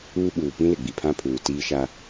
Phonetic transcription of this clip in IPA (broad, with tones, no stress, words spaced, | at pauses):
uː˦ ɓuː˨ pĩ˦lɪ˨ ɡ͡bi˨pʰã˦pʰuː˨ tiː˦ʃa˦